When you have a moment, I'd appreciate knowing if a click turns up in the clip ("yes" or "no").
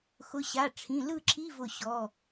yes